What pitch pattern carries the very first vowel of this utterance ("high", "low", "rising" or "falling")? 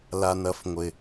low